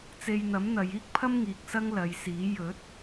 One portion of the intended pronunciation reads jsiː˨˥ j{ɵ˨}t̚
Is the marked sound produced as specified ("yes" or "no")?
no